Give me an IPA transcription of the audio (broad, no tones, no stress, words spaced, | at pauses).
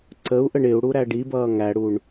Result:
ǀəu̯ʔəɳ ɪu̯ɽu ɾæɖibʌː ŋæɽuɳ